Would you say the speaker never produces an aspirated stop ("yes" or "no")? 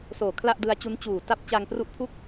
no